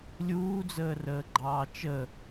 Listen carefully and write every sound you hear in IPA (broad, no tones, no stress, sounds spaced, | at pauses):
lʲ uː d͡z əː r əː ɡ͡ǃ ɑː t͡ʃ ə